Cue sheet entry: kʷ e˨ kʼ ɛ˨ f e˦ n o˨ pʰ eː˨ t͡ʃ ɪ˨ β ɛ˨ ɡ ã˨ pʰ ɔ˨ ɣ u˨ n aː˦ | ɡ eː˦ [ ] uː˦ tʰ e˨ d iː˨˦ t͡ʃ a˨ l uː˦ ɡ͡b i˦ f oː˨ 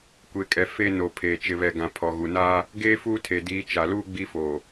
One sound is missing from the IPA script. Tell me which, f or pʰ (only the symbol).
f